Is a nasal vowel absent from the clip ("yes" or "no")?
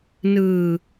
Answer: yes